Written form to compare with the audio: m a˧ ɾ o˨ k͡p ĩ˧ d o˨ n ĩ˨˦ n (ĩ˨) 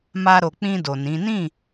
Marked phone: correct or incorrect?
incorrect: ĩ˦˨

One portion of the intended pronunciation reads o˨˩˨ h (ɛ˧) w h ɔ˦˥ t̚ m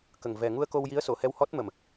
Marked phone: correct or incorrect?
correct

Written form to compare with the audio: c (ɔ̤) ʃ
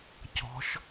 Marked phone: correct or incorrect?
correct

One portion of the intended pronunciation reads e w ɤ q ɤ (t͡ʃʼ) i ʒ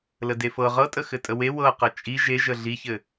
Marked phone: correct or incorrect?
correct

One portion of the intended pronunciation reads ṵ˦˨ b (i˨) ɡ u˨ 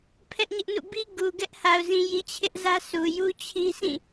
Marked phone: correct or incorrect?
incorrect: i˦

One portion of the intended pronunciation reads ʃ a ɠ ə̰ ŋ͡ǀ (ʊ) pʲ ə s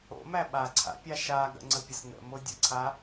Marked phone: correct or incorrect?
incorrect: ə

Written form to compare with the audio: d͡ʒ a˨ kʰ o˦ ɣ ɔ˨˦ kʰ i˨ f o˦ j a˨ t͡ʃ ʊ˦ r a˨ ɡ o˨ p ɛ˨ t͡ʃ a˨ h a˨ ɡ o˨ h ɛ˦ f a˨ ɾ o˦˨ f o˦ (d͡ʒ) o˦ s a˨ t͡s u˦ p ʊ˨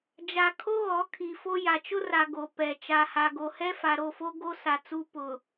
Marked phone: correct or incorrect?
incorrect: ɡ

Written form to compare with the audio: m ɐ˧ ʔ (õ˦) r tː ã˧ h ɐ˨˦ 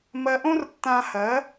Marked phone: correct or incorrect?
correct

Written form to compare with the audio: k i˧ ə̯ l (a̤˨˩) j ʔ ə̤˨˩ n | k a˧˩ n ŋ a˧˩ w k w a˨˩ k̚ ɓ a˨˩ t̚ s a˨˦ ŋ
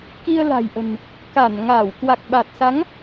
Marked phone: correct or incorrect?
correct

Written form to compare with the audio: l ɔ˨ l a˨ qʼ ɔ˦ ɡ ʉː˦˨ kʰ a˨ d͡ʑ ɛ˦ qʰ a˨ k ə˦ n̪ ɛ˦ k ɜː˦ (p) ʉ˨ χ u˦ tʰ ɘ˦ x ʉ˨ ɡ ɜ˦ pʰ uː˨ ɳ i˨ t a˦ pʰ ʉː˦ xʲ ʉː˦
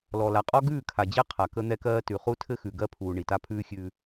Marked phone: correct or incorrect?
incorrect: t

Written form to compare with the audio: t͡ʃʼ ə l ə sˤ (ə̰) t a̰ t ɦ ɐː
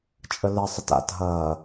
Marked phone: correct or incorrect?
incorrect: ə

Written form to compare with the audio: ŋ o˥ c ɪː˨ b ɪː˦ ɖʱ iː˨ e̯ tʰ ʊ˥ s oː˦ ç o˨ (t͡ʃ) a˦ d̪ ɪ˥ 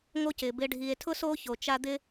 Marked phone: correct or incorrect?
correct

